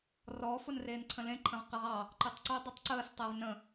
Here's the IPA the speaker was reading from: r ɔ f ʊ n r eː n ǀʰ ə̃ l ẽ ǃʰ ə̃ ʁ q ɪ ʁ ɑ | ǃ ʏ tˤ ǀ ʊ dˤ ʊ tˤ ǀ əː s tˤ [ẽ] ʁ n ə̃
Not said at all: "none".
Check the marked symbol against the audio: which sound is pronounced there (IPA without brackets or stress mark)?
e